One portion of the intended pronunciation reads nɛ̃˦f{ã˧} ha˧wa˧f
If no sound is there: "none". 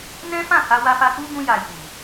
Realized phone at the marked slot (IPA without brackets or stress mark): ã˦˨